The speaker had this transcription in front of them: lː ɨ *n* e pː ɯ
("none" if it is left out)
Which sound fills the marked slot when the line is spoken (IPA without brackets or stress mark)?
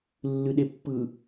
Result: ɗ